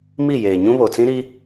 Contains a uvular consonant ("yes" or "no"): no